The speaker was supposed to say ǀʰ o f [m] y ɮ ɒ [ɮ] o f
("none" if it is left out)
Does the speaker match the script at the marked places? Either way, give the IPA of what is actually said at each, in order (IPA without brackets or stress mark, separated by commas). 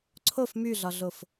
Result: m, ɮ